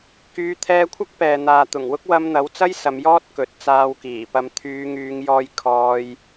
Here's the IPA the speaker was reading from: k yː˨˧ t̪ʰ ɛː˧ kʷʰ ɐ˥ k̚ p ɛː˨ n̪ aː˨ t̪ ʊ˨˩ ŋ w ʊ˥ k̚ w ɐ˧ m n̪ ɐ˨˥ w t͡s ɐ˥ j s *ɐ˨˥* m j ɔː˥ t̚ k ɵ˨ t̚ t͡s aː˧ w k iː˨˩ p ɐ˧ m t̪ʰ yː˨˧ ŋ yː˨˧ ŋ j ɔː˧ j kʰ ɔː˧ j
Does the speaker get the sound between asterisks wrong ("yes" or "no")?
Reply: yes